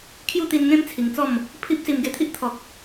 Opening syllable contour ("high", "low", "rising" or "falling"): falling